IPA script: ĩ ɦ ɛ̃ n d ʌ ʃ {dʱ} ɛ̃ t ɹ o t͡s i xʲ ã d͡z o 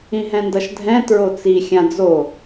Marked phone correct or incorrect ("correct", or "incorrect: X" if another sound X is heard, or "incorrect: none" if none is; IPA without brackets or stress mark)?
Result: correct